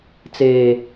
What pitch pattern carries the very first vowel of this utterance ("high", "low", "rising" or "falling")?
low